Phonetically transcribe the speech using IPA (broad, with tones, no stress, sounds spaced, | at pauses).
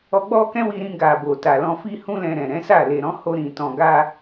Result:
ɔ˧ ɡ͡b ɔ˦ k ɛ̃˦ w i˧ ɾ ĩ˧ ɡ a˨ b o˨ t a˨ l ɔ̃˧ f i˧ h ũ˧ l ɛ̃˨ ɾ ɛ̃˨ ɾ ɛ̃˨˦ s a˦˨ l e˨ ɾ ɔ̃˨˦ h o˧ ɾ ĩ˨ t ɔ̃˨ ɡ a˧